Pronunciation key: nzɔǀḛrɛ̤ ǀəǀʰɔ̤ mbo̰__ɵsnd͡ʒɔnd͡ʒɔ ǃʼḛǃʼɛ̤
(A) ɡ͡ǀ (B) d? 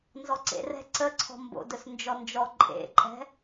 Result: B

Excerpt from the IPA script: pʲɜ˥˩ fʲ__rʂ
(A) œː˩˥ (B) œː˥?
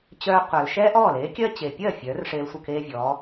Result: A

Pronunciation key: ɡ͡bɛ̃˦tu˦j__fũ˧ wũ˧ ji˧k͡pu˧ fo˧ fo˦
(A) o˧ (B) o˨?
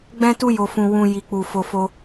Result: A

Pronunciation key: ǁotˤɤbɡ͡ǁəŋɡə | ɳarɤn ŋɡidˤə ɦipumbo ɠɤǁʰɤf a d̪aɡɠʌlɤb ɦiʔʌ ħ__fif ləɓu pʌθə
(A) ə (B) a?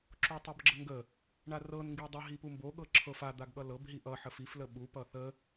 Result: A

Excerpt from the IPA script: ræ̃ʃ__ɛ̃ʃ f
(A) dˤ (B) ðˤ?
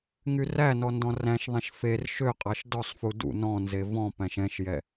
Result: B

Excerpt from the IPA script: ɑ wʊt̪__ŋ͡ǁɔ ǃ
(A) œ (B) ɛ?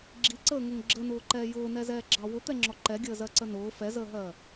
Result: B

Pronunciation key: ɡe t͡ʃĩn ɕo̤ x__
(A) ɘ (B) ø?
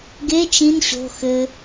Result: A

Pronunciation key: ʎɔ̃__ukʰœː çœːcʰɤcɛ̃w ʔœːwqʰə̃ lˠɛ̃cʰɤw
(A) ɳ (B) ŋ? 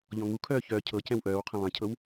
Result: B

